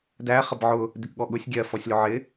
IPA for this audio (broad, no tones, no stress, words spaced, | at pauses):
dæ χəbʕʊ | dɪkɠɔɠʊsʲ ɡʲɜfɔsʲlʊ ʕɪ